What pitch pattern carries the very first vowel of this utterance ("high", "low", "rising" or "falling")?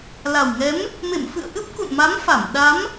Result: low